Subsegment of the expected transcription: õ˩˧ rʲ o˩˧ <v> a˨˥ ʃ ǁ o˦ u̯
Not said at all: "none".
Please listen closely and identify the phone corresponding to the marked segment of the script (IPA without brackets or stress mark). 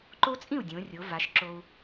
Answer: v